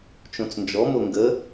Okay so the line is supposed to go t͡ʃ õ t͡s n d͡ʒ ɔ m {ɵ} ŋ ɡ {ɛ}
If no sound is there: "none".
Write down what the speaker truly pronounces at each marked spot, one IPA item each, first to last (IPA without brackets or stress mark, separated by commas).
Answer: o, ə